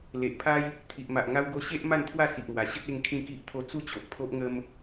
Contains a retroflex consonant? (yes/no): no